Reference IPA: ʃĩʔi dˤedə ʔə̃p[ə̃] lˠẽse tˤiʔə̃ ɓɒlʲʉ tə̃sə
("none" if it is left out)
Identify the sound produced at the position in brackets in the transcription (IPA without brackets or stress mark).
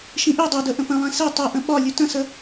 ə̃